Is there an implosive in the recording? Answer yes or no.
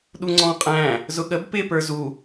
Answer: yes